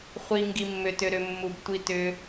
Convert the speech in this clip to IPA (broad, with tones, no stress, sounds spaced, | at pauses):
χʷ i˩ ŋ ɡ i˩ mː ʏ˩ t ʏ˩ ɾ ʏ˩ mː u˩ b tʷ i˩ t ʏ˩